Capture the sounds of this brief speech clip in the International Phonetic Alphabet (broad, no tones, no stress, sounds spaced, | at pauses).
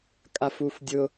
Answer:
kʼ a f u f dʲ ʊ